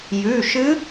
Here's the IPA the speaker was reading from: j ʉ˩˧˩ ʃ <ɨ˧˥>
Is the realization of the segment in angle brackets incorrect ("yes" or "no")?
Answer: no